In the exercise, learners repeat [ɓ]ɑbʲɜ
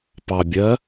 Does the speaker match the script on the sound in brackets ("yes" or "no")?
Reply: no